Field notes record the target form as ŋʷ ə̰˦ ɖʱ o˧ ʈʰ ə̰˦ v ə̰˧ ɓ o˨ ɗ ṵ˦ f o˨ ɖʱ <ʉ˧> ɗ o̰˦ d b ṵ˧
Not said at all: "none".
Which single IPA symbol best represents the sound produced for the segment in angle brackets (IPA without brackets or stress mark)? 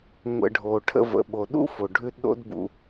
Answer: ʉ˧